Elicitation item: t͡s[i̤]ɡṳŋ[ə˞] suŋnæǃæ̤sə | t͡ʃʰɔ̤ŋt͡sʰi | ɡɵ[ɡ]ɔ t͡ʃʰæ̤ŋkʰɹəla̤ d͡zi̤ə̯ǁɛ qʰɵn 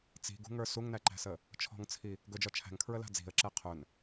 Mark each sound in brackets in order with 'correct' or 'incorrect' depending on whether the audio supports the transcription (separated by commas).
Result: correct, correct, incorrect